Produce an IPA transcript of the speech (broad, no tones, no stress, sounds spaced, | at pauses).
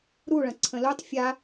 ɾ u ɭ ɐ̃ ǀʰ ə̃ l u tˤ fʲ a